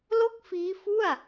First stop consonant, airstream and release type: plain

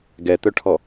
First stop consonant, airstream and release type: plain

